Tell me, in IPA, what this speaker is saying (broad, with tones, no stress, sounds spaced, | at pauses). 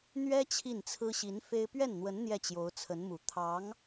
n̪ ɥ ɛ˥ t͡ɕʰ i˥˩ n t͡sʰ ɹ̩˥ ɕ i˧˥ n f e˥ ɪ̯ p ɥ ɛ˥˩ n n̪ w ə˧˥ n n̪ j ɛ˥˩ t͡ɕ j o˧˥ ʊ̯ t͡sʰ ə˧˥ n m u˨˩ t̪ʰ ɑ˧˥ ŋ